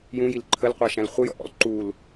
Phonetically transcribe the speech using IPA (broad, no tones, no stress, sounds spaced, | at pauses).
j ũ j i l ǃʰ ə l qʷ ɑ ʃ æ̃ l χʷ ə j ɔ̰ ʔ ɔ̰ l ǃ u l